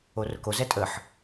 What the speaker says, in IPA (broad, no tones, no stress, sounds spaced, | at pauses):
o r ʊ k o z ɛ tʼ ə ħ